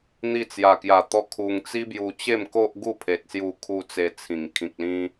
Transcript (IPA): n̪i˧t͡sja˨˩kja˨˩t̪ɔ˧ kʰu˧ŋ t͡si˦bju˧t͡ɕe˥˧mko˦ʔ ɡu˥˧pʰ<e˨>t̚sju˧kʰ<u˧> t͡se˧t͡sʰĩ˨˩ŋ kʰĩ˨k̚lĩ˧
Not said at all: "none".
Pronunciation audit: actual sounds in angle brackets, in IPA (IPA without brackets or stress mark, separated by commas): e˨, u˧